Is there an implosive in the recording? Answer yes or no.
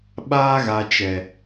yes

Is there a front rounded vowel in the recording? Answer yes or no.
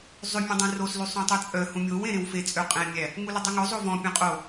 yes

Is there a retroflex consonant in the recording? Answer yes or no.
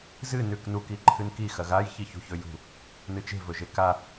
no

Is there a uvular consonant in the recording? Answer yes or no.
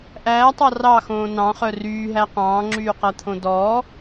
yes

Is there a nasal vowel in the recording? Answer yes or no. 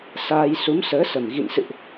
no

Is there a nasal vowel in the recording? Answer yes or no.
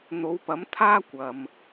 no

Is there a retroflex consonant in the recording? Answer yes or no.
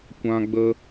no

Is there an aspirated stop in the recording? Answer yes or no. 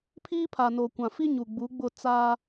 yes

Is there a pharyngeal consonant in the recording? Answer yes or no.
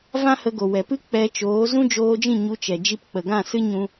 no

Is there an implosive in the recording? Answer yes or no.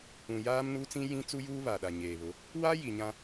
yes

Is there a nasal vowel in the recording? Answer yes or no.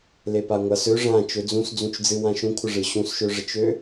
yes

